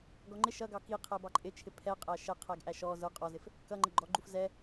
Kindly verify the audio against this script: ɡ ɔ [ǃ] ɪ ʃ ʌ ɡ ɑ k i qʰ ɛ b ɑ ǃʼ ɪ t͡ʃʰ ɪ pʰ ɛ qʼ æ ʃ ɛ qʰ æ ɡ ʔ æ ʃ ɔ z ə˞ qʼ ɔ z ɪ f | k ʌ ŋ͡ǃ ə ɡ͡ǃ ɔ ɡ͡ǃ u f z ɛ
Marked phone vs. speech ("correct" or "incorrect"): incorrect